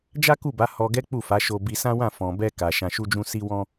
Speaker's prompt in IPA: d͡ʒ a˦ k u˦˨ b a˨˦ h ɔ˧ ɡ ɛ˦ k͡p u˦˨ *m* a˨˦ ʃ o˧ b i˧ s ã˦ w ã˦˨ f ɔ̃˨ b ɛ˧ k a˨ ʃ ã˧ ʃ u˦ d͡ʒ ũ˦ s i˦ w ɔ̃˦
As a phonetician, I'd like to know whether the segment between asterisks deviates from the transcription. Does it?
yes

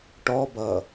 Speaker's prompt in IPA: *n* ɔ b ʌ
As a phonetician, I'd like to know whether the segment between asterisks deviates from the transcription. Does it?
yes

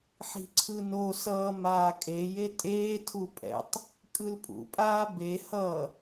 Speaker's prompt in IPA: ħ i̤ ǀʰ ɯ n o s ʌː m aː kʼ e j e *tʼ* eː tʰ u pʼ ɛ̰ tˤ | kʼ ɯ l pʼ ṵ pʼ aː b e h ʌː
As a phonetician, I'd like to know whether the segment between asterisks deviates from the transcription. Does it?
no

